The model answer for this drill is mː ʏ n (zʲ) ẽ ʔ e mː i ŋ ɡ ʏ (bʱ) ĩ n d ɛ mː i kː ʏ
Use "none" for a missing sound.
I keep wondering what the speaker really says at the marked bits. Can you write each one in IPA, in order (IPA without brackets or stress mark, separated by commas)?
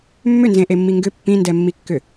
z, pː